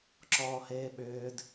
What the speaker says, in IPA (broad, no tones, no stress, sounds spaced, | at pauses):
ǁ ɔː h eː ɓ ʏː d